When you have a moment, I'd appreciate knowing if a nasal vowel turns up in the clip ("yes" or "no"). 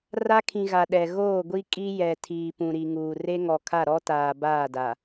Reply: yes